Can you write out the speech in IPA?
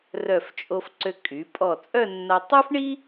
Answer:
rœ˧˩ft͡ʃʼo˧f ǀø˧ kʼy˩˧ pʼɔ˧˩t͡sʼœ˥˧nːa˧ tˤy˥fɳi˥

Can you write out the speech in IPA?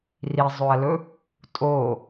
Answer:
rizˤɵɐ̯lɵ | tʼo

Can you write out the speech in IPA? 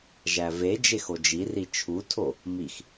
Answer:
ʒæve d͡ʒexod͡ʒi rit͡ʃʰutʰo | mix

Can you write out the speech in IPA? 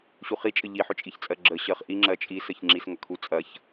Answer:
ɕuχit͡ʃʼə ʎiħʏt͡ʃʼiçt͡sʼɜ ɡ͡ǁə ɕɜχʔiŋ͡ǁɜ t͡ʃʼisəç ŋ͡ǁisŋɐkʰu t͡sʼɐç

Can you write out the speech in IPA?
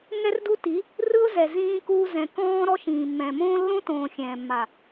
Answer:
ŋɛ˦rdu˦ti˨˦ | rɯ˦ʊ̯zɛ˨ zĩː˦kuː˦ zɛ̃˨ kɔ̃ː˦ ɾɔ˦ʃĩː˨mːɛ̃ː˨ mõː˦lːõ˦tõː˨ xʲɛ̃ː˨mːa˨

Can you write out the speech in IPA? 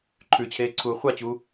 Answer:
ǃʰʉt͡ɕʰeːǀʰuː χʷat͡ɕuː

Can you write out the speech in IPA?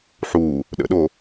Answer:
ħu | ɗə̰ɗo

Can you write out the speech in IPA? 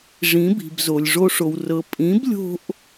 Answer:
ʐĩ˩˥bi̤˩bzo˩lʲ ʐo˧ʂo˩wrɤ˩˥ pʼĩ˩˥blʲo̤˧ʔ

